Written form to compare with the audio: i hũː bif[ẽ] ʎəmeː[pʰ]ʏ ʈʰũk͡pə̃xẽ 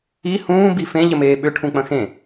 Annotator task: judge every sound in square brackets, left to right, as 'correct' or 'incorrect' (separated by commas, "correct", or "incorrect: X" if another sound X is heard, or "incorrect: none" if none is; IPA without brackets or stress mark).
correct, incorrect: ɓ